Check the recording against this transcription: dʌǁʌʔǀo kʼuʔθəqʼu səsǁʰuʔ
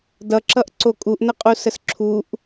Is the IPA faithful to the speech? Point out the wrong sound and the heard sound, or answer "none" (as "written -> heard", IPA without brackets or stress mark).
θ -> n